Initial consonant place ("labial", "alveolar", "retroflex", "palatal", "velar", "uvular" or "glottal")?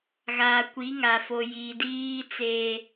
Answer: velar